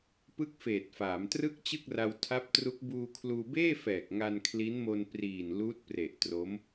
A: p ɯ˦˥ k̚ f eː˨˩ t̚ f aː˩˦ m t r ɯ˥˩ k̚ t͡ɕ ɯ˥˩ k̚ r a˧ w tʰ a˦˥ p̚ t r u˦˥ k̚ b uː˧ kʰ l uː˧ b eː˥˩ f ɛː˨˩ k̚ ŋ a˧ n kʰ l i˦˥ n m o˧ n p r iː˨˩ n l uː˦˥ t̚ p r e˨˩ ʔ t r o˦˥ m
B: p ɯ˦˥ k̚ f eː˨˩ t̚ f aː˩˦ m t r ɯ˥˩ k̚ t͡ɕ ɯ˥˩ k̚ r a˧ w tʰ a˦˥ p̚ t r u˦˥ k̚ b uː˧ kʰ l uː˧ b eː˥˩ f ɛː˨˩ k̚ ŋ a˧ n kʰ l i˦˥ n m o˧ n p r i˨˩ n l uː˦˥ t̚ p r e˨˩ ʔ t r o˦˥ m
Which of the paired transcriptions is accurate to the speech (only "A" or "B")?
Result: A